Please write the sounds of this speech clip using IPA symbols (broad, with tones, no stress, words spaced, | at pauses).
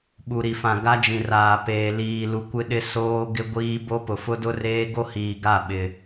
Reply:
ɓu˨ɾi˨fã˨ ɡa˦d͡ʒĩ˨raː˨ peː˨ liː˨lu˨kʷɪ˦ɗɪ˦ soː˦ ɡɪ˦ɡʷiː˦ bo˦pʊ˨ fʊ˦dʊ˦reː˦ ɡo˦hiː˨ɡa˦˨ ɓɪ˨